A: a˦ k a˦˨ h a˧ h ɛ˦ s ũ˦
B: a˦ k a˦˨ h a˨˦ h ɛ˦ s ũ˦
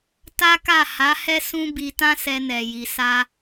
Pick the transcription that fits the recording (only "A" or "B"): B